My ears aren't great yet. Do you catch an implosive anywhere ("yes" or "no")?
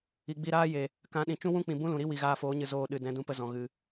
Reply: yes